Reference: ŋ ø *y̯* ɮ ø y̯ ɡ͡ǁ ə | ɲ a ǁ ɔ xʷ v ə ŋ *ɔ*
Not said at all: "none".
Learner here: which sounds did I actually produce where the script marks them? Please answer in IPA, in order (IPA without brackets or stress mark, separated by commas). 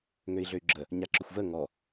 i̯, ɔ